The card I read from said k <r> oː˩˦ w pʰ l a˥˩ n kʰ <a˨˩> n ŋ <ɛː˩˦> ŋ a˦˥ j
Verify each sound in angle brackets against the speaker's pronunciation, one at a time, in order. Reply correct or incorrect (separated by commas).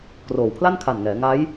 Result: correct, correct, correct